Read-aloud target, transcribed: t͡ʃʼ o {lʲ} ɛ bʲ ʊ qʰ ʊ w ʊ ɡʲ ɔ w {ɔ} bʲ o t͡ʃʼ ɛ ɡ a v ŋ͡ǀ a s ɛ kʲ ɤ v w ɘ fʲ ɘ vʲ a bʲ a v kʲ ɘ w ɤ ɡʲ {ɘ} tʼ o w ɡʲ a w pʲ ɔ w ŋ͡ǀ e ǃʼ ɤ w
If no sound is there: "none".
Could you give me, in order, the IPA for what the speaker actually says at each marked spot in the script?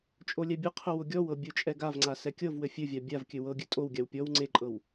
lʲ, ɤ, ɘ

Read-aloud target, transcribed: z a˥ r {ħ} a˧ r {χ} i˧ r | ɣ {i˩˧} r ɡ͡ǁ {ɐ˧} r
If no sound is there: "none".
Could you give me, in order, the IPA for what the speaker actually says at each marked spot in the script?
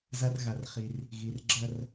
ɣ, χ, i˩˧, ɐ˥˧

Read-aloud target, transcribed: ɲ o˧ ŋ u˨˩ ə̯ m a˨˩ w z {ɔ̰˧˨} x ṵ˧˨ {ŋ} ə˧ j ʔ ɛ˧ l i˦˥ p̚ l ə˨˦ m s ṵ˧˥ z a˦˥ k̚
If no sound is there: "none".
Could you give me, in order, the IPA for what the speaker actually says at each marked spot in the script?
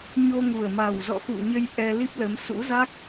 ɔ̰˧˨, ɲ

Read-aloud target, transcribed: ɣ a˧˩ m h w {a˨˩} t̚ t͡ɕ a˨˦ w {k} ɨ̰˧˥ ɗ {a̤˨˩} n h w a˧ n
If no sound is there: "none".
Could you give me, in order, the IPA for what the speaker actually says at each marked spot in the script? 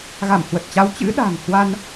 ə˨˩, t͡ɕ, a̤˨˩

